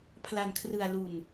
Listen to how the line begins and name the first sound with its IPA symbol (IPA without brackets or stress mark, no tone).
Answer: pʰ